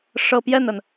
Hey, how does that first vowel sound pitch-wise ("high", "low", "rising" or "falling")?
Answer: falling